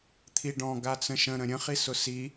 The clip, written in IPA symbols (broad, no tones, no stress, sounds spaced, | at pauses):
t̪ʰ i ɖ ɔ̃ ɡ a t͡s ə̃ ʃ ə̃ ɾ ə̃ ɾʲ ə̃ χ i s ʊ s i